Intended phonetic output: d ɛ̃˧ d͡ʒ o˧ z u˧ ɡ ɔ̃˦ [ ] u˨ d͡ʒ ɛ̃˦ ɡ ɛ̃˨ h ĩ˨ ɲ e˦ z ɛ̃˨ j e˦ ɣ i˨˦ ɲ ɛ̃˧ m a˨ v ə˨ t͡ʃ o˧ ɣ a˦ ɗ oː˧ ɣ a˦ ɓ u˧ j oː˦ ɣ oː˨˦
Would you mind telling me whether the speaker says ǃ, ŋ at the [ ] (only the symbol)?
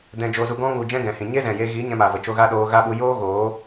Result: ŋ